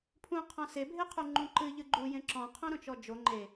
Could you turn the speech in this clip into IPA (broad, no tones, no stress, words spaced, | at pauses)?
pʰũqʰɔ̃ sebʱeqʰu ŋ͡ǃũǃɨ ʎɨɡ͡ǃu jẽǁɔ̃qʰõɾõ t͡ʃɔd͡ʒo ŋ͡ǃe